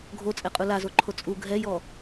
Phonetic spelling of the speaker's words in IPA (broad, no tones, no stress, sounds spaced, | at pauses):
ɡʱ o t͡sʼ ɛ qʼ u l a z o ǃʰ o t͡sʼ u ɡʱ ɛ j ɔ